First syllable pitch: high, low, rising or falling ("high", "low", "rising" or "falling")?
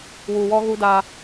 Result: low